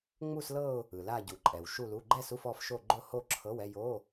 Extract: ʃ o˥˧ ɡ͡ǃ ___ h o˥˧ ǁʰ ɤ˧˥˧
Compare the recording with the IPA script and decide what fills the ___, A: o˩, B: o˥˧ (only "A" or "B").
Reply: B